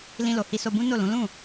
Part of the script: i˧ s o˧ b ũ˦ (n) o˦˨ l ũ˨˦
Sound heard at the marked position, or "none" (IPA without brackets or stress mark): n